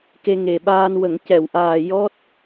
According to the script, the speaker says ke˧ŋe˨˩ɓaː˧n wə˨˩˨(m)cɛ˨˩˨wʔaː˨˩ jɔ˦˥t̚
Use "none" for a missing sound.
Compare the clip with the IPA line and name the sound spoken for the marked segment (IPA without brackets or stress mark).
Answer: ŋ